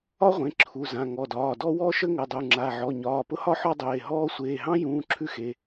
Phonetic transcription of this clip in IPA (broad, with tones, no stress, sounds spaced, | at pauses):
ɒ˥ ʁʷ ẽ˩˧˩ ǁʰ u˩˧˩ z ã˩˧˩ ŋ ɔ˩˧˩ d ɒː˩˧˩ d ɔ˥ w ɔ˥ ʃ ə˥ ŋ ə˩˧˩ dˤ u˩˧˩ ŋ͡ǁ a˩˧˩ ʕ ɔ˩˧˩ ɲ ɒː˩˧˩ p ʊ˥ h ɒ˥ ħ ɔ˥ dˤ eː˩˧˩ ɦ ɔː˥ sʷ eː˩˧˩ ɦ ɑ̃˥ j ũː˩˧˩ ǁʰ ʉ˥ x e˩˧˩